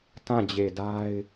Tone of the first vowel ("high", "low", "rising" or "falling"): falling